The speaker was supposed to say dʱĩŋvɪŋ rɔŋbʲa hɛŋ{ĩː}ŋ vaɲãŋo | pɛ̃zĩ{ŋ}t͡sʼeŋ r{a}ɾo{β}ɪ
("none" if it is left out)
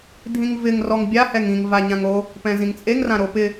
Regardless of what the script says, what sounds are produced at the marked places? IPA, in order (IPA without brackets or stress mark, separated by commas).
ĩ, ŋ, ã, p